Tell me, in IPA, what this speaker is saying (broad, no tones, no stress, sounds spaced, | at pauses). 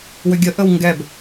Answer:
w ʏ ɡʲ ə ʔ ə w ŋ ɡ ɛ b